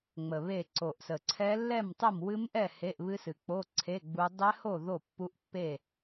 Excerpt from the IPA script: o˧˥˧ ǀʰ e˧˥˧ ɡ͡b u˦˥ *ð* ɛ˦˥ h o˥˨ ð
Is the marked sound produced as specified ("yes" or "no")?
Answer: no